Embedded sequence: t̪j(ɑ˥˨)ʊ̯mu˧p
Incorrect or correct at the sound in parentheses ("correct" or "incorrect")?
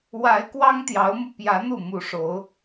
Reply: incorrect